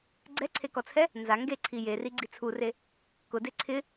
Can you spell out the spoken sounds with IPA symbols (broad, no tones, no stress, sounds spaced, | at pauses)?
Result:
ɡ͡ǀ ɛ ǀʰ e k ɔ t͡sʰ ɛ | n z a ŋ ɡ e ǀʰ i j e r i ɡ͡ǀ i t͡sʰ u r e | k ʊ d e ǀʰ ɪ